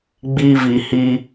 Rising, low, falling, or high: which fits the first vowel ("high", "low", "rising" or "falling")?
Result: high